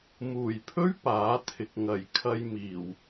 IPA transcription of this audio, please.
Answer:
m uː˨˩ j pʰ ɵ˥ ɥ p aː˨˥ t̪ʰ ɪ˨ k̚ ŋ ɐ˨˩ j kʰ ɐ˧ j m iː˨˩ w

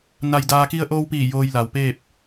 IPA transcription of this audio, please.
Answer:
n a˧ j d aː˧ k i˧ ə̯ ʔ oː˧ w p iː˧˩ j oː˧ j l a˩ w p eː˥˨ p̚

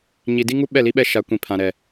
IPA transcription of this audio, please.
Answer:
ɲ i˨ d i˦ ŋ u˦ ɓ ɛ˦˨ l i˦ ɓ ɛ˦ ʃ a˨˦ kʷ ĩ˨ pʰ ã˨ ɾ ɛ˨

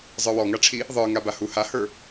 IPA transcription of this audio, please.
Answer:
zˤ ə˞ w ɔ ŋ a ʈ͡ʂʰ i | ðˤ ə˞ ŋ a b a h u h a h ə˞

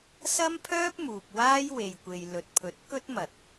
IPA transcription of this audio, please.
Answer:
s ɐ˥ m pʰ œː˥ p̚ m uː˨ p̚ w aː˥ j w e˨ j kʷ e˨ j l ɵ˨ t̚ pʰ ɵ˨˥ t̚ k ɵ˥ t̚ m ɐ˨ t̚

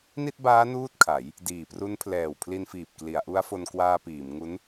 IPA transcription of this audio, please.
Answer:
n i˥˩ t̚ b aː˦˥ n uː˥˩ t̚ kʰ a˩˦ j | d iː˨˩ p r u˦˥ n pʰ l ɛː˨˩ w pʰ l i˧ n f iː˨˩ p̚ k l i˩˦ a̯ ʔ u˦˥ a̯ f o˧ n k w aː˧ p iː˩˦ m ŋ u˦˥ n

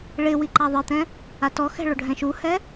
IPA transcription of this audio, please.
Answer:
ɭ ɪ w i ǃ a ðˤ ɪ t̪ ɛ̃ | a t ɔ x ɛ̤ ɭ o ɖʱ ɛ̃ ʃ u h ɛ

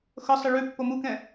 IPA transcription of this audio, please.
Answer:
x ɤ sˤ ɪ ɭ ʉ pː o m u k ɛ̃

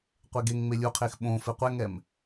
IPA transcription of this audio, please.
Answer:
qʷ e ɡ e ŋ ŋ͡m e lʲ u qʰ e x ɓ õ f e qʷ ɛ ŋ ɛ m

